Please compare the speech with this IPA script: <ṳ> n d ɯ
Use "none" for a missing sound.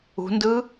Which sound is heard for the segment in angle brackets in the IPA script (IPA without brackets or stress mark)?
ṳ